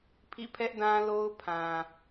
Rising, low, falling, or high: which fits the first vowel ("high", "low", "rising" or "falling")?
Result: falling